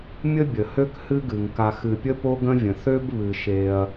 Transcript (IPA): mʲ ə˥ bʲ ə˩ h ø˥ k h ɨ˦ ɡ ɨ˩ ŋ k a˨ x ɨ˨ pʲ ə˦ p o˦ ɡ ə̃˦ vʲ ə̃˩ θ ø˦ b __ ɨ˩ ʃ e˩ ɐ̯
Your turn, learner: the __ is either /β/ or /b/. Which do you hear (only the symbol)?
β